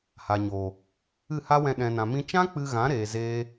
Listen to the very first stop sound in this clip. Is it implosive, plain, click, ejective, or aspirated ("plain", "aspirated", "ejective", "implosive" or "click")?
implosive